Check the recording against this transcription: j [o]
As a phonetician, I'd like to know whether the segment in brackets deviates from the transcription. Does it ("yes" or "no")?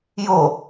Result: no